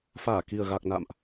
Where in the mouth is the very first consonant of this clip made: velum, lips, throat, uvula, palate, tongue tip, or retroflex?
lips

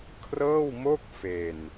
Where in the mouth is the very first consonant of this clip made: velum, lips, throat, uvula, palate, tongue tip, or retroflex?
velum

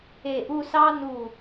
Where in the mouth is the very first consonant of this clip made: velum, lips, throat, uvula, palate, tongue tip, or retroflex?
throat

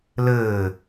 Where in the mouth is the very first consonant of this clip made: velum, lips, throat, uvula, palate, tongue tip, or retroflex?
tongue tip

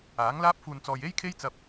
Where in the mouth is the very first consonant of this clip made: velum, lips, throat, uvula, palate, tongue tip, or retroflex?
velum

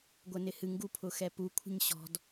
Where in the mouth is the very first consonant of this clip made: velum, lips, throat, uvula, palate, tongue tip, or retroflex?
velum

